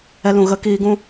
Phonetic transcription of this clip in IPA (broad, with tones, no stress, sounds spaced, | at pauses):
ɛ˦ l ũ˧ ɣ ə˦ k iː˦ ɡ ũ˦